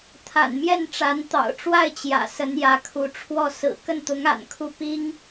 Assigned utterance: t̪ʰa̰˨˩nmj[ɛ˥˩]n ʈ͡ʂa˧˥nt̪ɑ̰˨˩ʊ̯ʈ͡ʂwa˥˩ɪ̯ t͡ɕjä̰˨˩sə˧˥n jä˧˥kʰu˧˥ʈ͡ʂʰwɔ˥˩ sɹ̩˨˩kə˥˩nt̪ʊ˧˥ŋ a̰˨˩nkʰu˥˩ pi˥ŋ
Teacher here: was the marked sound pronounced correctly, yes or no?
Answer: yes